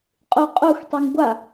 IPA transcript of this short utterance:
qʼ u qʼ u x tˤ u ŋ ɡʷ a

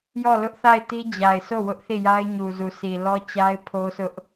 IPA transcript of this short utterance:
j ɔ˦˨ l ʊ˦ ʔ θ a˦˨ ɪ̯ t i˦ d͡ʑ a˨ ɪ̯ sʰ o˦˨ w ʊ˦ ʔ θ i˦˨ j a˦ ɪ̯ ɲ u˨ z u˨ s i˨ l ɔ˦ t͡ɕ a˦ ɪ̯ pʰ o˦ s ʊ˦ ʔ

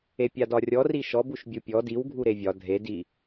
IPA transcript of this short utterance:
e pʲ a d ɒ rʲ ɔ r i ʃ ɔ b u ʃ bʲ u pʲ ɔ d i w ɡʱ u ɾ e vʲ ɒ dʱ e d i

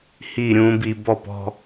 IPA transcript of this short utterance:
h i˧˩ ɾʲ ũ˩˧ b i˧˩ b ɔ˥˧ p ɔ̤˧

